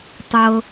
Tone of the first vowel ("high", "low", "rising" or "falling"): low